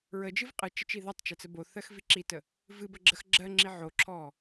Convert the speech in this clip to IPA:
ɹ ə d͡ʒ ɨ v qʼ ɨ t͡ʃ ə t͡ʃ i ð ɜ tˤ t͡ʃ ɜ t͡s ə b o θ ɜ x v i ǁ i t ə | v ɨ b ə ɡ͡ǁ ə x ɡ͡ǁ ɜ ŋ͡ǁ i ʕ o ǁʰ ɔ

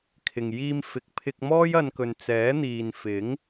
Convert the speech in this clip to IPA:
kʰ ɪ˨ ŋ j iː˧ m f ɪ˨ k̚ pʰ ɪ˧ k̚ m ɔː˥ j ɐ˧ n k ɵ˨ n t͡s ɛː˨˥ n̪ iː˨ n f ɪ˨˥ ŋ

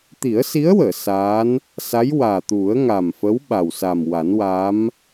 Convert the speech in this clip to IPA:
t̪ i˨˩˦ ə̯ s i˧˥ ə̯ w əː˨˩˨ s aː˧˥ n | s a˧˥ j w aː˨˩ t̪ u˨˩˦ ə̯ ŋ a˨˩ m f ə˧˥ w ɓ a˨˩ w s a˨˩ m w a˨˩˦ n w a˧˥ m

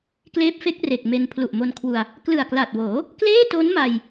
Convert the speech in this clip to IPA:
k l eː˦˥ p̚ f e˦˥ k̚ r e˨˩ k̚ m e˧ n pʰ l u˨˩ ʔ m o˧ n kʰ w u˧ a̯ | k l ɯ˨˩ a̯ k l a˨˩ t̚ w oː˩˦ | k l eː˥˩ t o˦˥ n m a˧ j

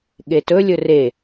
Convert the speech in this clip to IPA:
ɠ e t ɵ lʲ ɵ r e

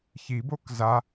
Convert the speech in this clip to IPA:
ç i b o k z a

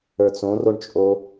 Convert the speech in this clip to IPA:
ə˞ t͡s õ r o ɳ t͡ʃʼ o

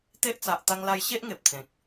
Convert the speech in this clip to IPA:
t̪ e˦ ʔ t͡s a˨ ʔ t̪ a˧ ŋ l a˧ j ɕ e˦ ʔ ŋ e˨ p̚ t͡s ẽ˨ k̚

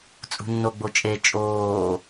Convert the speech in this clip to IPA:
t͡sʼ ṳ nː o ɡ͡b o t͡ʃʼ e t͡ʃʼ oː

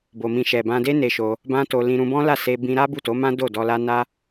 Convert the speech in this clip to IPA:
b o˧ m ĩ˧ ʃ ɛ˨ b ã˧ d e˦ n e˧ ʃ o˧ | b ã˦ t o˧ l ĩ˧ ɾ ũ˧ b ɔ̃˦ l a˦˨ s e˧ b ĩ˧ ɾ a˦ b u˦˨ t o˨˦ m ã˦ d o˦˨ d ɔ˧ l a˦ n a˦

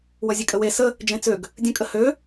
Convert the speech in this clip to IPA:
w ʌ zʲ e kʼ ə w e s ə | d͡ʒ ẽ t͡s ø ɡ | dʲ ə̃ kʼ ə h ø

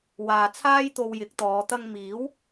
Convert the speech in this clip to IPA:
w aː˨ t͡sʰ aː˥ j t̪ o˧ w j ɪ˨˥ k̚ t̪ ɔː˨˧ t̪ ɐ˧ ŋ m iː˨˥ w

